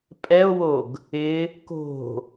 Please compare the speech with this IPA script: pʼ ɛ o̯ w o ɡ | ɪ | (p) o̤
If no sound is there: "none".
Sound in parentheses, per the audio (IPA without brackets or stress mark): k